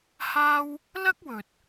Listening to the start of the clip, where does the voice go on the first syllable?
high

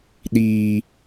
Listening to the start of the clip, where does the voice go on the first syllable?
high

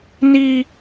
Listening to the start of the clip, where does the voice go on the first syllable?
high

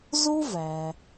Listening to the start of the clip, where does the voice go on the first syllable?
high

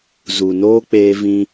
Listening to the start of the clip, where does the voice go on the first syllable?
low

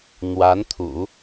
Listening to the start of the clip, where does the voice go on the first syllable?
rising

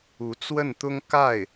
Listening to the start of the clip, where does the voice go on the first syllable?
rising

